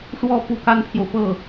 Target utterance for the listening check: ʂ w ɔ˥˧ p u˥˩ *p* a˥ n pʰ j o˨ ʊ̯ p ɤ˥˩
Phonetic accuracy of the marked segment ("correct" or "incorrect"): incorrect